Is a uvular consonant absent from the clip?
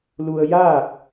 yes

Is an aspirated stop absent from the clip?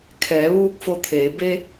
no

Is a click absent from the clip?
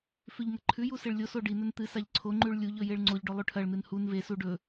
no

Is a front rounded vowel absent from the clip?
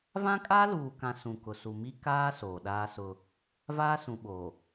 yes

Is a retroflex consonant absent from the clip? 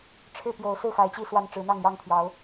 no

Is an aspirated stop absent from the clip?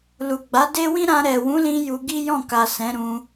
yes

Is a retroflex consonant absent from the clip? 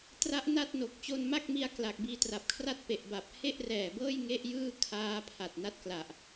yes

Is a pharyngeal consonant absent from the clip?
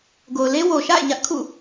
yes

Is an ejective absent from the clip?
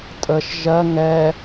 no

